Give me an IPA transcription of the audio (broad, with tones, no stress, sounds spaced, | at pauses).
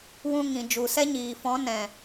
w ũ˧ ŋ ĩ˨ d͡ʒ u˨ s ɛ˦ ɲ iː˨ f ɔ̃˨˦ n ɛ̃˨